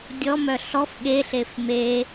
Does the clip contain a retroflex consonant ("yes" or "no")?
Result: no